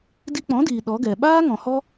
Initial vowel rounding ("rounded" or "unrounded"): unrounded